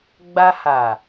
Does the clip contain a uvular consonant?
no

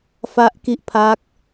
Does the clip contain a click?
no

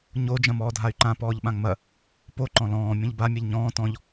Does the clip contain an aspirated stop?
no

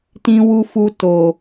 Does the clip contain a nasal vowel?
yes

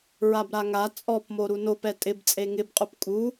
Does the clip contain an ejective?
yes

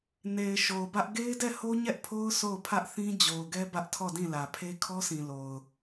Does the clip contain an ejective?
no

